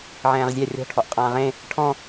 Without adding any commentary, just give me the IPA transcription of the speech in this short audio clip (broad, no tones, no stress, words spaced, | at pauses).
ʕɛ̃ːʁzʲæ rʲɔ̤ ʈʰɔʔqʼãːʁẽ | ʈʰɔ̃